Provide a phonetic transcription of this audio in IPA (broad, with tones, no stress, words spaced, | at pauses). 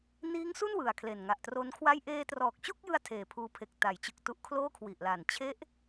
niː˦˥ŋsu˥˩n wɯ˨˩a̯kʰle˨˩n ŋa˨˩ʔ tro˦˥nkʰwa˥˩j ʔeː˧trɔː˨˩k̚t͡ɕo˥˩k̚jɯ˧a̯ tʰeː˨˩pʰuː˧pʰe˨˩k̚ ta˩˦jt͡ɕɯ˨˩k̚ tu˦˥ʔkʰloː˥˩kʰwi˨˩ʔla˨˩n t͡ɕʰe˦˥ʔ